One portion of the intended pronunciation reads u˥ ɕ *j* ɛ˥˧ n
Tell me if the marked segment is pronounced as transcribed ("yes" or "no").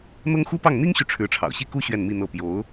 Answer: no